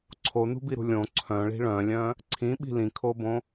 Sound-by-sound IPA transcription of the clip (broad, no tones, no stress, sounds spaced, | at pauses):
ǀʰ o n ṳ b i ɾ ṳ lʲ õ ǀʰ œ̃ ɭ i̤ ɭ œ̃ lʲ œ̃ | ǀʰ ĩ ɓ i̤ l ĩ kʰ o b õ